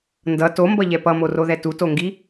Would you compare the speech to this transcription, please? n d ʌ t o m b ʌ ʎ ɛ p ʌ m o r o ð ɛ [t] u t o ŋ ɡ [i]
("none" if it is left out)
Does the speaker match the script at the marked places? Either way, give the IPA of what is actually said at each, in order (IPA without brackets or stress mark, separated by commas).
t, i